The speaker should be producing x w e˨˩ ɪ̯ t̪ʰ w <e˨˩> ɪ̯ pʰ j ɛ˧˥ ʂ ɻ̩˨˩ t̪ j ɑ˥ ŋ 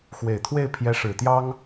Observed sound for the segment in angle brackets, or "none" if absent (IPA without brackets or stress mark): e˥˩